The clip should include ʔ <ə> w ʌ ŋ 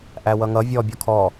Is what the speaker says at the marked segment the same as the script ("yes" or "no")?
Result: no